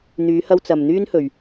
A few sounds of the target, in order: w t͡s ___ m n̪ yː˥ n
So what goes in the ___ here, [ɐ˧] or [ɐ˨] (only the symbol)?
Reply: ɐ˨